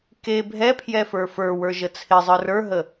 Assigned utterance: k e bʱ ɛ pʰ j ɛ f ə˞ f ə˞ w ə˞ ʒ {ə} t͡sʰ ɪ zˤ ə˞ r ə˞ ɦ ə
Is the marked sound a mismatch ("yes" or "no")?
no